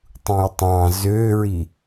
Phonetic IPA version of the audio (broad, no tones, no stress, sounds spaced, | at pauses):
tˤ ũ j tˤ ɑ̃ z ø ɹ i